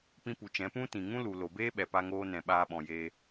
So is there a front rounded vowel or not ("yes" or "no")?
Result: no